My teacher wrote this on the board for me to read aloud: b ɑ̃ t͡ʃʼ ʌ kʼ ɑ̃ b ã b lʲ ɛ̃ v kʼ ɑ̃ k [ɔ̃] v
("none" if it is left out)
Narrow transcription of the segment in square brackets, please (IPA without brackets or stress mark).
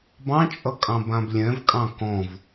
ɔ̃